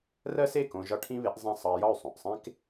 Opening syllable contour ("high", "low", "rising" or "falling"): high